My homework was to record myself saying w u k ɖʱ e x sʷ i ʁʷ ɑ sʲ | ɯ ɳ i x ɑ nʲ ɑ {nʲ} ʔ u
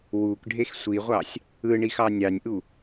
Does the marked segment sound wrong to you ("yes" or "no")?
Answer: no